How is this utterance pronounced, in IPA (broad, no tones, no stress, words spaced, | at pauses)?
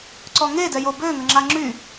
ǀɔŋedɛjo bøŋə ŋ͡ǁaŋ͡ǁy